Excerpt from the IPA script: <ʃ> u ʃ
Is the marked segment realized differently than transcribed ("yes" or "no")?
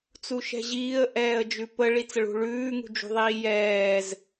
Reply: yes